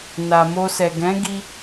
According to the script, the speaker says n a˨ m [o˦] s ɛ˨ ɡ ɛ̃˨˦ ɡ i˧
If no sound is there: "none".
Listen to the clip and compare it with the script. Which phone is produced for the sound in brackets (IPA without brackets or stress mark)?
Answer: o˧